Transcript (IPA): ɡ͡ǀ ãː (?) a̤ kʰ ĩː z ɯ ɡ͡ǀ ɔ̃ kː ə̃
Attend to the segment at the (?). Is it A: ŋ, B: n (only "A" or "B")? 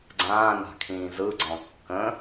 B